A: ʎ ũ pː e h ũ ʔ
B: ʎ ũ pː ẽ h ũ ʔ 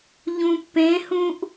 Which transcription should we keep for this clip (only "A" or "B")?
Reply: B